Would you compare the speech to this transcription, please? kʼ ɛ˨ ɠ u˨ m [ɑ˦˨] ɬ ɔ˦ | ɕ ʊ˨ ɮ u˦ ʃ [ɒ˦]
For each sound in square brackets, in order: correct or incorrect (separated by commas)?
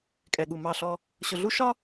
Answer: correct, correct